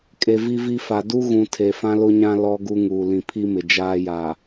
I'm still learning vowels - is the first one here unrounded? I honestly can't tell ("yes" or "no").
yes